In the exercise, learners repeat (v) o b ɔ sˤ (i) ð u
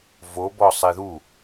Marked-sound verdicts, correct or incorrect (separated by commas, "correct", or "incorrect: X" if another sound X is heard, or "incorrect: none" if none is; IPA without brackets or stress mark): correct, correct